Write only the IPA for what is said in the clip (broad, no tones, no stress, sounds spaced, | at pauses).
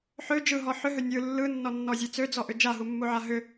ħ ø d͡ʒ ɯ ɦ ɔ ħ ʏ ɦ ø nʲ ɯ lː ɯ nː ɔ nː ɔ zʲ e t͡s ø d͡z ɔ ʔ ʏ d͡ʒ a ɦ u mː u ʕ a ɦ ʏ